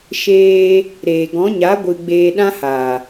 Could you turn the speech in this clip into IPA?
ʃ eː˧ | ɾ eː˨ ɡ ɔ̃˨˦ ɲ a˨˦ ɡʷ ɨ˧ ɡ͡b eː˧ ɗ ã˦ h a˨

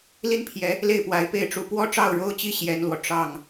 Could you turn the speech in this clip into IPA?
l i˥˩ n pʰ j ɛ˧˥ | l e˥˩ ɪ̯ p w a˧˥ ɪ̯ p e˥˩ ɪ̯ ʈ͡ʂ u˧˥ p w ɔ˥ ʈ͡ʂ ɑ˥˩ ʊ̯ ɻ o˥ ʊ̯ t͡ɕ i˥˩ ɕ j ɛ˥ n l w ɔ˨ ʈ͡ʂ ɑ˥˩ ŋ

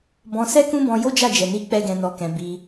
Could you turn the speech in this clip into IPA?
b ɔ̃˧ s ɛ˦ k ũ˦ b ɔ̃˧ j o˦ d͡ʒ a˦˨ d͡ʒ ɛ˨ n i˧ k͡p ɛ˦ ɡ ɛ̃˧ n ɔ˧ k ɛ̃˧ b i˧

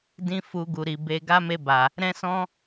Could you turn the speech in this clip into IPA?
d ĩ˦ f u˧ ɡ u˨ ɾ i˨ b e˧ ɡ a˦ m e˧ b a˨ | ɾ ɛ̃˦ s ɔ̃˦

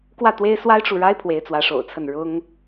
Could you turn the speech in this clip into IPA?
k w ä˥˩ t̪ w e˥ ɪ̯ s w a˥ ɪ̯ ʈ͡ʂ u˨ ɻ a˥ ɪ̯ pʰ w e˧˥ ɪ̯ t͡s w ä˧˥ ʂ o̰˨˩ ʊ̯ t͡sʰ ə˥˩ n ɻ ʊ˥ ŋ

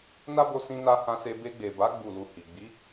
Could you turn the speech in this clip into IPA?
n a˦ b o˧ s ĩ˧ n a˧ h ã˧ s e˧ b e˧ ɡ͡b e˨ b a˨˦ ɡ͡b u˦˨ l u˧ h i˨ ɡ͡b i˨˦

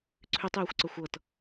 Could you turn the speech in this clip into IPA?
ǀʰ ʉ tˤ j o xʷ ǀ ə xʷ ɤ t

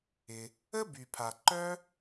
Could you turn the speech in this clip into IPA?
ɪ˩ | ə˥ b y˩ pʰ a˩ ǃ œ˥

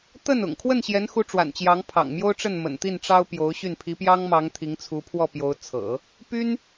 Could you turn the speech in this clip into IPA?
t̪ ə˥˩ n ʊ̰˨˩ ŋ kʰ w ə˥˩ n ɕ j ɛ˧˥ n x u˧˥ ʈ͡ʂ w a̰˨˩ n t͡ɕ j ɑ˧˥ ŋ pʰ ɑ̰˨˩ ŋ m j o˥ ʊ̯ ʈ͡ʂ ə˥˩ n m ə̰˨˩ n t̪ i˥˩ n ʈ͡ʂ ɑ˥ ʊ̯ p j o˧˥ ʊ̯ ɕ y˥˩ n pʰ i˧˥ p j ɑ˥ ŋ m ɑ˧˥ ŋ t̪ʰ i˧˥ ŋ t͡sʰ u˧˥ pʰ w ɔ˥˩ p j o˧˥ ʊ̯ t͡sʰ ɤ̰˨˩˦ | p y˥ n

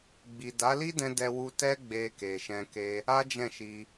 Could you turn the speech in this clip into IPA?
ɡ͡b i˨ d a˨˦ l i˦ d ɛ̃˧ d ɛ˧ w u˧ t ɛ˦ ɡ͡b e˧ k e˨ ʃ ɛ̃˨ k e˧ | a˦ d͡ʒ ɛ̃˦˨ ʃ i˧

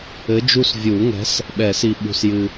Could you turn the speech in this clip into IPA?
ɘ˨˥ d͡ʒ u˦˨ s vʲ u˨˩˦ ŋ ɛ̤˨˥ s | ɓ ɛ˨˩˦ s i˨ ɓ ṳ˨ s j ɨ˨

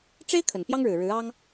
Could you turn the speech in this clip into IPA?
ʈ͡ʂ e˥ ɪ̯ kʰ ə˨˩ n p j ɑ˥ ŋ ɻ ɻ̩˨˩ ɻ ɻ̩˧˥ ɑ˥ ŋ

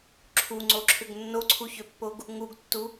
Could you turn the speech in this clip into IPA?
ǁʰ u ŋ͡ǀ o ǁʰ ʏ ɡ nː o ǀʰ u ç ø pː o ɡ | ŋ u ɡ tː u

